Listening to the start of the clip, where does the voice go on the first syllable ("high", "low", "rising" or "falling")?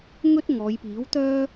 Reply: high